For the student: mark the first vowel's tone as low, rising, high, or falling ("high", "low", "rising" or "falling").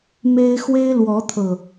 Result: high